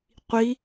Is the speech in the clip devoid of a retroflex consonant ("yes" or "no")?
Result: yes